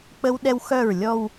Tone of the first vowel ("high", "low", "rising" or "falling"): high